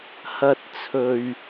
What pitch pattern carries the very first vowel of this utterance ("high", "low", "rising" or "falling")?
low